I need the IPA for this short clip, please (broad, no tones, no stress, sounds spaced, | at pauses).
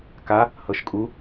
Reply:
k a | h ɤ ʃ kʼ u